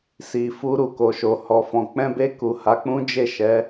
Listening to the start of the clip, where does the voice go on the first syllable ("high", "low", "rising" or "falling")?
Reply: low